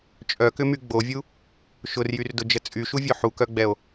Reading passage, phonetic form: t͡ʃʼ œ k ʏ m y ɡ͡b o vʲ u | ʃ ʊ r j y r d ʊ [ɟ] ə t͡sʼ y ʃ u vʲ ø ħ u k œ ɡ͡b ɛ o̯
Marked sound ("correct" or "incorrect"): incorrect